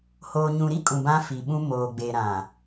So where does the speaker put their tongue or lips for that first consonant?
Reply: throat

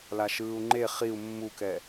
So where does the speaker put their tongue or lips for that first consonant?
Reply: tongue tip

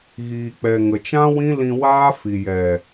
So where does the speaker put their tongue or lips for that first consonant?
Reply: velum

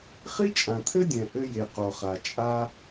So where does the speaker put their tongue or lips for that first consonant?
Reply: uvula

